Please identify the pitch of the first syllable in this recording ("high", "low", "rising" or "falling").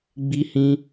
high